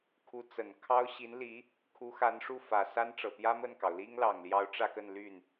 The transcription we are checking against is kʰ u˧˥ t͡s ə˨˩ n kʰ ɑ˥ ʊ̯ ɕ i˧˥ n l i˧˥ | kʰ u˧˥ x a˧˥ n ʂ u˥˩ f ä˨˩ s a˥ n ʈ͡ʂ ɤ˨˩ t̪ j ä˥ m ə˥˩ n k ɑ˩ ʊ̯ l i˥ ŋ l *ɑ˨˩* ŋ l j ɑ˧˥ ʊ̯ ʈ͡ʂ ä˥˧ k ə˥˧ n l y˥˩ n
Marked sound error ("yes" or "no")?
no